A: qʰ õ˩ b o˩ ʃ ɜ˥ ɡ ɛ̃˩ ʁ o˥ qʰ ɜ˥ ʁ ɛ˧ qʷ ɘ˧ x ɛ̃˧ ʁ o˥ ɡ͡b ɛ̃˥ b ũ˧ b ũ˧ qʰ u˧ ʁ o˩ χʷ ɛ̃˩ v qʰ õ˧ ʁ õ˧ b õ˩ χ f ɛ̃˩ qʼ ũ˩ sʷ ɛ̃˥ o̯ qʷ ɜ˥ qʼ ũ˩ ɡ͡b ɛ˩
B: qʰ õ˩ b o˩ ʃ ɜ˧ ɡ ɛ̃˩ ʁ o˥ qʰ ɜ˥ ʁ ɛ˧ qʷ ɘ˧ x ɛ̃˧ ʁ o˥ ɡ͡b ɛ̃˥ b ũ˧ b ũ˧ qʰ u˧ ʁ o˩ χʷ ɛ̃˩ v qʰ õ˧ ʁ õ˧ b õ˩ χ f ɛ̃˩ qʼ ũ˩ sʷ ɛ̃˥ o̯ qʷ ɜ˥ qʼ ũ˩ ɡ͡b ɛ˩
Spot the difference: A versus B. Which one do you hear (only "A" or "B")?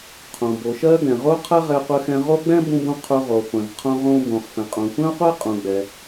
A